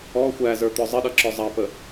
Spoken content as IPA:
ɔ xʷ æ z ə˞ t̪ ɔ zˤ ə ɗ ʌ ǁ ɔ zˤ ɑ p ə

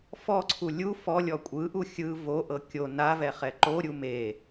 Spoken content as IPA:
f ɔ ǀʰ u lʲ u f ɔ lʲ ɔ kʷʼ ɯ ʔ u xʲ ɯ v o ʔ ɤ kʲ o n a v ɛ χ ɛ ǃ o ɾʲ u m e

